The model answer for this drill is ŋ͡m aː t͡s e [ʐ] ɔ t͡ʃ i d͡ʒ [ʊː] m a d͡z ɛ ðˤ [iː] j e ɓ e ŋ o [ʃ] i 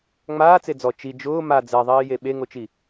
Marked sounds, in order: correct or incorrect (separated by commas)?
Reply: incorrect, correct, correct, incorrect